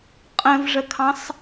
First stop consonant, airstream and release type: ejective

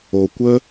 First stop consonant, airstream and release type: plain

